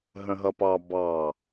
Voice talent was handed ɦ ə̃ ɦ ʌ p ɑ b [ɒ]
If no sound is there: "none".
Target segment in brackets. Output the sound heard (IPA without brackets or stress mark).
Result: ɑ